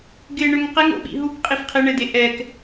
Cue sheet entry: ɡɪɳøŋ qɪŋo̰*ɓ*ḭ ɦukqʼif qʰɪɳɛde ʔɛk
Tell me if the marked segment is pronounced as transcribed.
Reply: yes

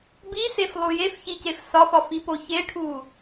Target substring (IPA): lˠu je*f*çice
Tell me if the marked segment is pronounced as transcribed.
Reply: yes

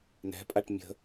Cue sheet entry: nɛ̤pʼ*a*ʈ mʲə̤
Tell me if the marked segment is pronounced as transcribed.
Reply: yes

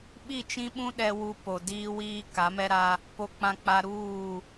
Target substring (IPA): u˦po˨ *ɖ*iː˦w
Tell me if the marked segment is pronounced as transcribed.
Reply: no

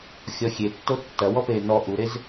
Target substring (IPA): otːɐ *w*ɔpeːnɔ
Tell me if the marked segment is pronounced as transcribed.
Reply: yes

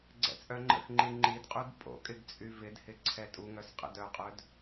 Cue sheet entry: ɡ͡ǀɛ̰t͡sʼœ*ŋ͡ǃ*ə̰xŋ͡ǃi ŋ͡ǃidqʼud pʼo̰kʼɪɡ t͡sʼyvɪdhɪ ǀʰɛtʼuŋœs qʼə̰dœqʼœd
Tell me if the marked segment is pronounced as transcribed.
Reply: yes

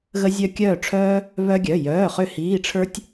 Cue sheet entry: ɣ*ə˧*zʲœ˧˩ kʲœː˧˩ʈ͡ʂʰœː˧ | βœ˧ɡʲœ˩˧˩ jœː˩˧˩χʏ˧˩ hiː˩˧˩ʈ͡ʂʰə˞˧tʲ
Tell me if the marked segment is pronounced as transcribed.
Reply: yes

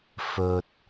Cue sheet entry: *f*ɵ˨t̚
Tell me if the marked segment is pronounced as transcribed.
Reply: yes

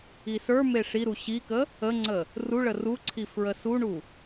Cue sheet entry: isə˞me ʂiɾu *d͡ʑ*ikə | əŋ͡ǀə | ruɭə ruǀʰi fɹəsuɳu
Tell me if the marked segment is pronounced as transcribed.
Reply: no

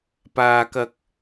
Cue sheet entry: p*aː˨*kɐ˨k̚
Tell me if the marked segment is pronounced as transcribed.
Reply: yes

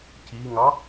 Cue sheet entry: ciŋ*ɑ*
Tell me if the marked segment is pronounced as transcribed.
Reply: yes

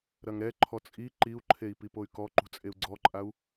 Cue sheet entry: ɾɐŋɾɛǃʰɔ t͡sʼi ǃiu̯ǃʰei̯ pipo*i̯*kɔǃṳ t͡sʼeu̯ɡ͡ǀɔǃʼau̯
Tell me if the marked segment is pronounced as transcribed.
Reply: no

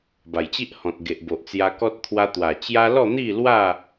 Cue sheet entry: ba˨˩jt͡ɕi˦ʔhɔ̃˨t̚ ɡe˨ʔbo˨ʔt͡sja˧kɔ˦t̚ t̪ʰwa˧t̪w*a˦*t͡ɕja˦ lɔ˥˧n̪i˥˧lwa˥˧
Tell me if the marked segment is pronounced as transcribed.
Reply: no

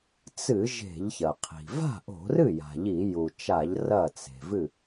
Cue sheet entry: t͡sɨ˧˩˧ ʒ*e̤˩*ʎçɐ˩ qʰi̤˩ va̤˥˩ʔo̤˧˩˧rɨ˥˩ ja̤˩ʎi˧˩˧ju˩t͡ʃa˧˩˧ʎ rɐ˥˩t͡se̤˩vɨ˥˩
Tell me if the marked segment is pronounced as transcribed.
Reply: no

